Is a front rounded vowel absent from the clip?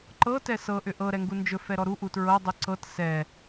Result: no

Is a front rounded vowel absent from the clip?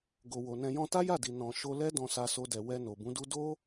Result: yes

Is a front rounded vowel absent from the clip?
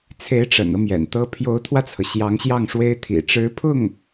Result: yes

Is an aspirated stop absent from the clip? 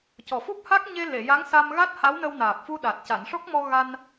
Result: yes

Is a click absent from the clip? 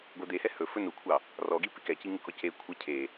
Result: yes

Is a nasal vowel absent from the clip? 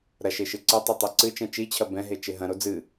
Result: no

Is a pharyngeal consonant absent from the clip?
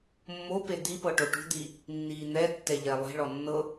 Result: yes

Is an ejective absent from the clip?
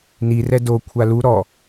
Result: yes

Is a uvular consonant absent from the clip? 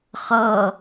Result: no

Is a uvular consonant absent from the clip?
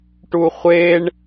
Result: no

